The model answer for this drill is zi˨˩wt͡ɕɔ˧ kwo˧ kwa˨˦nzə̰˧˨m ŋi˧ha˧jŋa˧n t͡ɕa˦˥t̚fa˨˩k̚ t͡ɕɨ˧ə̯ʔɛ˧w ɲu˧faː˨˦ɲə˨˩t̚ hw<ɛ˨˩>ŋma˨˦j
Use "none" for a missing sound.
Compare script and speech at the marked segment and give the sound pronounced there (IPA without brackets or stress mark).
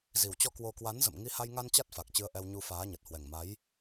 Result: ɛ˨˩